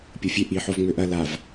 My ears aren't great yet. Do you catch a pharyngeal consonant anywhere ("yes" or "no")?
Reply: yes